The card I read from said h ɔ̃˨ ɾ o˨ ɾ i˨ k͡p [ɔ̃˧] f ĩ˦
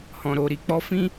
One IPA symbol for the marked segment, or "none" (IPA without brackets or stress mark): ɔ˧